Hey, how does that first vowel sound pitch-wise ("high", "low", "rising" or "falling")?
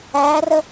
rising